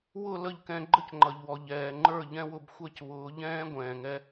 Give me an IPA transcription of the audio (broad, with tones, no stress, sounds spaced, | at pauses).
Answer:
w ʊ˦˨ l ə˦˨ ʎ k ɛ̃˧ ɡ͡ǃ ə˦ c ŋ͡ǃ ʌ˨ ʎ w ɔ˨ ʎ ɛː˨ ŋ͡ǃ ə˞˦˨ ʎ ɛ̃˦ w ʊ˧ b xʷ ɛ˦ c β ʊː˨˦ ʎ ɛ̃ː˦ ɡʷ ɛ̃ː˨ ŋ ɛ˧